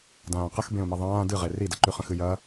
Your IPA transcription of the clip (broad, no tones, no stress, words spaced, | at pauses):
dãːqəx bẽʊ̯mɐðˤãː dɨʁe ridəǃyχə̃ xɨjɐ